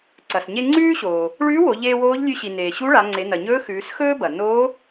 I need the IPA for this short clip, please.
ǀ ɐ˩ s ɲ e˧ ŋ͡ǀ ʉː˥ ɕ oː˩ | ɭ ʉː˧˥ w o˩˧ ʎ eː˧ w oː˧˥ ʎ lʲ ʉ˧ ɕ i˩ n eː˩ ɕ u˧˥ ɭ a˩˧ ŋ͡ǀ e˩˧ n ɐ˩ ɲ ɵː˧˥ x ʉː˩˧ s x ɵː˥ b ɐ˩ n oː˧˥

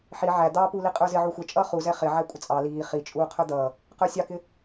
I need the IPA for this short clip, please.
ħ i ʕ æ d̪ ɑ p u l i qʼ ə˞ z ɪ ʕ u xʷ ə t͡ʃʼ ʌː χ u z ɛ χ ɪ ʕ æ kʷʼ ə t͡sʼ ɑ l iː χ i t͡ʃʼ uː qʰ ə˞ d̪ ʌː | q ə˞ sʲ ɑ k ɪ

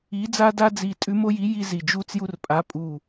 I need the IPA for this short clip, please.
i˧˥ d͡z a˥ d a˥ d͡z i˧˩ tʼ ʉ˧˥ m o˥ j i˧˥ j i˥ z i˧˩ d͡ʒ u˥ t͡s j u˥ r pʼ a˧˥ pʼ u˧˩

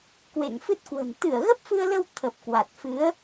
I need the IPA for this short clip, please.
k w ḛ˧˨ ŋ f ɨ˦˥ t̚ k w ə̤˨˩ n t̪ ɨ˧˩ ə̯ ɣ ə˦˥ p̚ f ɨ˧ ə̯ l ə˧ w t̪ʰ ə˨˩ p̚ k w a˨˩ t̚ f ɨ˨˦ ə̯

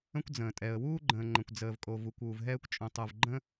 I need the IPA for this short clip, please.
ə̃˥ kʷ d͡z ə̃ː˩ tʼ ɛ˩ ə̯ w uː˥ ɡ͡ǃ ə̃ː˩ ŋ͡ǃ ə̃˩ kʷ d͡z əː˩ v kʼ o˩ v u˩ kʷ uː˩ v ɦ ɛː˥ kʷ t͡ʃʼ ũ˩ tˤ ɯ˩ v ɡ͡ǃ ə̃˥

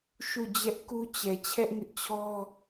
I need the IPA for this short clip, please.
ʃ u˦˨ d͡ʑ ɛ˦ ʔ k u˦ t͡ɕ ɛ˨ t͡ɕʰ ɛ˦ ʔ ŋ ɪ˦ ʔ t͡ɕʰ ɔ˦

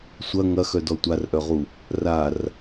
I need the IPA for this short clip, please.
sʷ ɐ ŋ ɐ x œ d ɔ tʷ a r ʔ œ ʁ u | r a r

